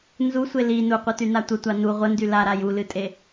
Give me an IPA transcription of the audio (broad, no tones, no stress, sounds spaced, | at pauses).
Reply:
n z u sʷ e l i n u qʷ ɨ t y n a tʷ ə tʷ a n u ʁʷ ə n d y l a ɾ a j u l ɨ tʼ e